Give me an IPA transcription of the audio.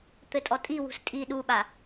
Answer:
t̪ ɘ tʼ ɔ tʼ i w ṳ s tʼ i ɗ u ɓ a

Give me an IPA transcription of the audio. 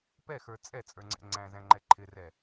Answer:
p ɛ x ə˞ t͡sʼ ɛ t͡sʼ ə˞ ŋ͡ǀ ɛ̰ ŋ͡ǀ æ̃ z æ̃ ŋ͡ǃ ɛ ǃʰ ɪ r ɛ

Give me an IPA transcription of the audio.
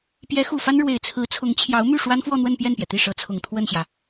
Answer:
p j ɛ˧˥ x u˨˩ f a˥ n ɻ w e˨˩ ɪ̯ t͡sʰ ɹ̩˧˥ t͡sʰ ʊ˧˥ ŋ t͡ɕʰ j ɑ˧˥ ʊ̯ m y˥˩ ʂ w a˥ n f w ɔ˥˧ n̪ w ə˥˧ n p j ɛ˥˩ n p j ɛ˩ t̪ i˥˩ ʂ ɤ˧˥ t͡sʰ ʊ˨˩ ŋ t̪ʰ w ə˥˩ n ɕ j ä˩

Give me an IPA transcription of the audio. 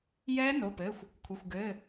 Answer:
j ɛː˦˥ n o˩˧˩ p ɘː˩˧˩ xʷ | kʷʰ ɘ˩˧˩ xʷ ɡ ɘː˩˧˩

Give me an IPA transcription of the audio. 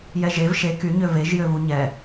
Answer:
j ɛ ʒ e v ʃ e k y ɲ ø v e ʒ j ø v u ɲ ɛ

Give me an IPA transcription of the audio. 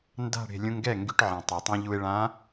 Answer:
n d a̤˥˧ ɽ e̤˧ lʲ ũ˧ ŋ ɡ ɛ˥˩ ŋ ɡ y˧ ʈ ʕ ẽ˩ tˤ y˩ tˤ ĩ˧ ʎ u˧ e̯ ɭ ã˧˥

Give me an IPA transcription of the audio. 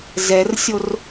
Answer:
z ɛ r sʲ o r

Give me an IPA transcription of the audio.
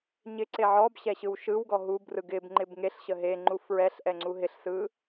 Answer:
ɲ ɪ ǀ e ʕ ɔ b ɕ ɛ ɕ ɯ w ʃ ɯ w ɡ ɔ ɦ u b r ɯ ɡ ɪ b ŋ͡ǃ ɪ b ŋ e ɬ ɕ ə ɦ e ŋ͡ǃ u f ɹ ɛ ɬ ʔ ɛ ŋ͡ǀ u ɦ ɪ ɬ s ɯ

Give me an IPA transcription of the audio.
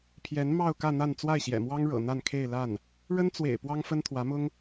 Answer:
pʰ j ɛ˧˥ n m ɑ˥˧ ʊ̯ k ä˥˧ n̪ a˥˧ n t͡s w a˥˩ ɪ̯ ɕ j ɛ̰˨˩ m w ɑ˥ ŋ ɻ ɤ̰˨˩ n̪ a˥˧ n kʰ e˥˧ ɪ̯ l a˥˩ n | ɻ ə˥ n t͡s w ḛ˨˩ ɪ̯ p w ɑ˥ ŋ f ə˥ n t̪ʰ w ä˧˥ m ʊ˥ ŋ

